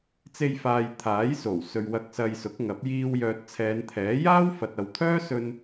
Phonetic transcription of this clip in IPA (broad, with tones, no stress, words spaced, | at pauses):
t͡se˧jfaː˨j t̪ʰaː˨˥jso˨˩w sɵ˨ɥwɐ˧k̚ sɐ˧jsʊ˨˥k̚ŋɐ˨˥p̚ jiː˧w jœː˧t̚t͡sʰɛː˨˧nt̪ʰɛː˨˥ jaː˥wfɐ˨t̚ ɐ˨wt̪ʰœː˥ sɵ˧n